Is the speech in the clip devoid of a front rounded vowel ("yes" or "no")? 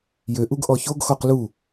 no